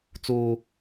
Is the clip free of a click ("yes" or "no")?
yes